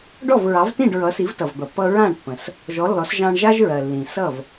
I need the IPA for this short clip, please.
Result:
ɖ ɔ˥˩ v ɹ ɑ˩˥ v t ĩ˥˩ ɖ ɹ ʌ˩˥ s i˩˥ v t ʌ˩ v d̪ ʌ˩ pː ʌ˧ ɹ ã˥˩ ɳ pː ə̃˩ s | ʒ ɔ˩˥ lː ɔ˩˥ s ʒ ɑ̃˧ ɳ ʒ a˥ ʒ ɹ ɜ˩ lː ĩ˩ s ʌ˥˩ v

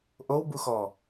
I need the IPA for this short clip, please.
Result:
ʔ o w b u x ɔ

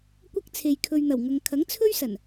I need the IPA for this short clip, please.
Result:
kʷ ɐ˥ k̚ t͡sʰ e˨ j kʰ ɵ˨ ɥ n̪ ɐ˨˩ w ŋ ɐ˨ ŋ kʰ ɐ˨˥ ŋ t͡sʰ ɵ˥ ɥ s ɐ˨˩ n

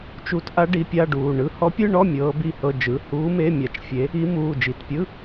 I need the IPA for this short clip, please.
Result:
t͡ʃ u˧˥ t ʔ a˧˥ ɖ i˧˥ pʲ a˧˥˧ ɖ uː˩˧˩ ɳ ɯ˧˥˧ h ɔ˧˥ pʲ ɯ˧˥˧ ɳ ɔ˧˥˧ mʲ ɤː˧˥ b i˧˥˧ h ɤ˧˥˧ d͡ʒ ɯ˩˧˩ h uː˧˥ m e˧˥˧ mʲ a˧˥ t͡ʃ fʲ e˧˥ | i˧˥ m uː˩˧˩ d͡ʒ i˩˧˩ t pʲ ɯ˧˥˧

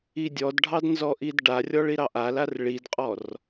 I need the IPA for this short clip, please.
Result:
i dʲ ɔ d ɖʱ ɑ d n z ɔ ʔ i d ɖ a rʲ ɔ ɭ i ɾ ɑ ʔ a l a r ɭ i d qʼ ɔ r

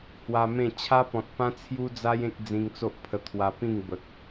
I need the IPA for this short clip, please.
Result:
h w a˧ m ẽ˥˧ t͡ɕʰ a˦ p ɔ̃˨ t̚ p ã˦ t͡sʰ j u˦ d͡z a˦ j ẽ˦ k̚ d͡z ĩ˧ ŋ t͡s o˦ ʔ pʰ ə˧ t̪ʰ w a˧ p ĩ˥˧ ŋ b ə˨ k̚

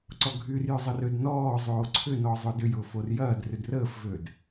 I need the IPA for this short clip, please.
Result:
ǀ ɔ ɡʱ y r j ʏ zˤ ə r ø d n ɔː zˤ oː ǀʰ ʏ n ɔ zˤ ʊ d ʏ j ʊː f o r j ɐː d r ʏ d r əː f v øː d

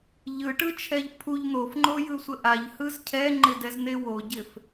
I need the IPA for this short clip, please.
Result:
ʎ ɯ ʈ ɯ t͡ʃʰ ɛ ʎ pʰ u ʎ n̪ o f ŋ͡ǃ o j ɯ sʷ ə ʔ a ʎ h ɯ z cʰ ɛ ŋ͡ǃ ɪ d ɛ z n̪ e w o ɟ ɪ f

